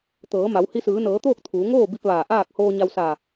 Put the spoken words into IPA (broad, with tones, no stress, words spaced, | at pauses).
t̪ɤː˩˧ma˩˧w hi˧sɯː˩˧nɤː˩˧t̪oː˥˨k̚ t̪ʰuː˩˧ŋoː˥˨ bi˧p̚ ʋaː˧˩ʔaː˥˨k̚ hoː˧ɲa˧wsa˧˩